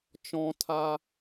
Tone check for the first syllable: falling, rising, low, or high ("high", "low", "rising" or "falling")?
high